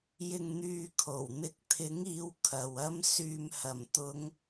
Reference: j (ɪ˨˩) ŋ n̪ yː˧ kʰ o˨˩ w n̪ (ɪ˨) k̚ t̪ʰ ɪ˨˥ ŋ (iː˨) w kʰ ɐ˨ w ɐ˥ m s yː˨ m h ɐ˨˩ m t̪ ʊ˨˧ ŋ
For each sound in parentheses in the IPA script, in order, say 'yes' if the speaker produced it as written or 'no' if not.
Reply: no, no, no

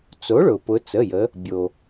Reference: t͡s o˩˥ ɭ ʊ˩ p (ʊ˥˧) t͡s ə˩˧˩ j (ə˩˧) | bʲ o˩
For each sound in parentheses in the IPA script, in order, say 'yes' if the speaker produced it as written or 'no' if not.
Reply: no, yes

